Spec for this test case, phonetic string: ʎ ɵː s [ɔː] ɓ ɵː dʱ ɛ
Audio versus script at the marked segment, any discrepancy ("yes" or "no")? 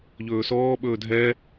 no